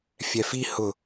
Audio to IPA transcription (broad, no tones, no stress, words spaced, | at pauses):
fʲɛfi hʊ